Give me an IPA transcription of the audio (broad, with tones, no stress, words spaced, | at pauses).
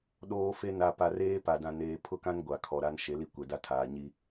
ɗoː˦fe˦ na˨ pa˨reː˦ pa˨dã˨ neː˦ pʰʊ˦kã˦n ɡʷa˨kʰɔ˨ɾa˦n ʃe˨˦li˦ kʷɛ˨da˦ tʰaː˨ ɲi˦